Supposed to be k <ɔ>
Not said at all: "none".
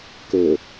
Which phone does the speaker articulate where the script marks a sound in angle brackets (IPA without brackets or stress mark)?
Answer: ɵ